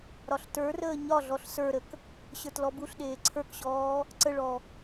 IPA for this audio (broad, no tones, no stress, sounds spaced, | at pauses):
ɾ ɒ ɬ t ə˞ r əː ɲ ɒ ɮ ɔ ɬ s ə˞ ɾ ə k | ɕ ə˞ t l ɔ b u ɬ ɗ eː ǀʰ ə˞ k ɕ ɔː | ǀ ə ɭ ɔ